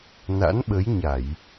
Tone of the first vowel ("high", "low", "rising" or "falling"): rising